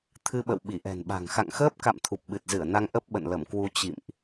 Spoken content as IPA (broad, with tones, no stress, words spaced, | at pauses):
t̪ʰɨ˧ɓə̰˧˨w ɓi˧˩ʔɛ̤˨˩nɓa̤˨˩ŋ xa̰˧˨ŋxəː˦˥p̚ka̰˧˨m t̪ʰu˨˩p̚ɓɨ˨˩t̚zɨ˧˩ə̯na˧ŋ ʔə˦˥p̚ɓə̰˧˨nlə˧˩mkwu˧ t͡ɕḭ˧˨mʔ